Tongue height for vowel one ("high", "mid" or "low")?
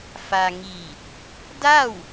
low